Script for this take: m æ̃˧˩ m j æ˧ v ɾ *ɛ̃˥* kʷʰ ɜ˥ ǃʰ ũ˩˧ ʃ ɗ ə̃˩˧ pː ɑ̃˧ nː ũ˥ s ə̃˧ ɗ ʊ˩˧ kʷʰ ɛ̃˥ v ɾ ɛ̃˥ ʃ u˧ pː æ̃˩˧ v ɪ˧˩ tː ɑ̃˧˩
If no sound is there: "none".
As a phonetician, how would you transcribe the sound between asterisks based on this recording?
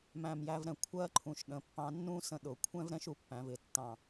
ɛ̃˩˧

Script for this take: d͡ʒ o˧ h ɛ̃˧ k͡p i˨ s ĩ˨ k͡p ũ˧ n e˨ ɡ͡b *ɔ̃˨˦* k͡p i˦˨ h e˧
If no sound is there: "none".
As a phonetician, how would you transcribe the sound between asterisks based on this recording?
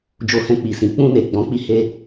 ɔ̃˨˦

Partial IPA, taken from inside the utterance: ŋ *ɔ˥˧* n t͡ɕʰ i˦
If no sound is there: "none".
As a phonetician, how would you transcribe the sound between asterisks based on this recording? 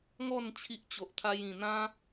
ɔ˥˧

